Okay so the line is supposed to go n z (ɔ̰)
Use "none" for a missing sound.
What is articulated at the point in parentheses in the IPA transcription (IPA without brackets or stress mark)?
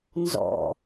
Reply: ɔ̰